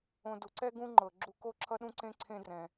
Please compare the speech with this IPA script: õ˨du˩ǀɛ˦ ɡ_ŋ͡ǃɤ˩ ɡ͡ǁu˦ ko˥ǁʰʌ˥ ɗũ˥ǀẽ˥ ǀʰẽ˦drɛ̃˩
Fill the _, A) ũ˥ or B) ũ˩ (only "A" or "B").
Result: A